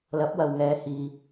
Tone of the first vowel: rising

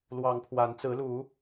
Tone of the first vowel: rising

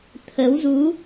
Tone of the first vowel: rising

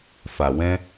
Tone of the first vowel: low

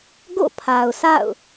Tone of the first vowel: falling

